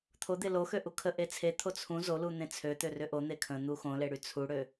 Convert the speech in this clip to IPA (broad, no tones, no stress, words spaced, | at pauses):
t̪ʰod̪e loxø ʔukʰəʔe t͡sʰet̪ʰo t͡sʰũ zolu n̪ẽt͡sʰøt̪ø rʏʔon̪e kʰə̃ n̪uxõle ɽyt͡sʰuɽø